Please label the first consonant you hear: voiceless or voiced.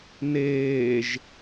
voiced